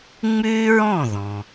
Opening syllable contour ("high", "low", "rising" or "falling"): high